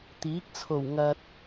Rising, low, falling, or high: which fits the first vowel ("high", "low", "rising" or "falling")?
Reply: rising